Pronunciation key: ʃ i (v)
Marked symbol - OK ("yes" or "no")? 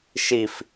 no